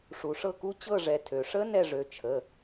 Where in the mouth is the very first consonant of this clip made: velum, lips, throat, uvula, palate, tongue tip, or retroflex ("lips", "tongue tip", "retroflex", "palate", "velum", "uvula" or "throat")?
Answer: retroflex